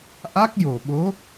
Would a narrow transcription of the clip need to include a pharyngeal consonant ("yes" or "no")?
no